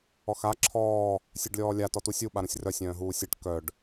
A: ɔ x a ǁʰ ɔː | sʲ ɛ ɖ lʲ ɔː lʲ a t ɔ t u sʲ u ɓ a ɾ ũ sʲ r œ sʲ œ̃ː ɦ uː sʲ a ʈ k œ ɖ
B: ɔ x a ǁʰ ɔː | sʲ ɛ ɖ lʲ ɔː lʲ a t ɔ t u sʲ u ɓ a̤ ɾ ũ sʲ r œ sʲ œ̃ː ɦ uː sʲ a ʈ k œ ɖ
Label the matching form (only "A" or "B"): A